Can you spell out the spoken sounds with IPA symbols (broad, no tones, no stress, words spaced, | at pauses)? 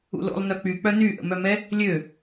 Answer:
ṵlo̰lˠ nœk͡pyk͡pœ nyʔə̰mœmɛ | lʲø